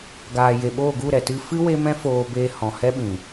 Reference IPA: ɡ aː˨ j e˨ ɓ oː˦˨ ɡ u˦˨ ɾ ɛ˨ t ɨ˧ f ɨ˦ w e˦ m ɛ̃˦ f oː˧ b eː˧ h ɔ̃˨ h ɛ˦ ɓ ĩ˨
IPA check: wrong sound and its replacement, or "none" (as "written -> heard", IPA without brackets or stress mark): none